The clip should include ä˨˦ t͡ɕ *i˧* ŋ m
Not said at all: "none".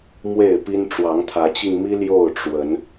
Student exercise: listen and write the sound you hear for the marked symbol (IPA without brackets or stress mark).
i˧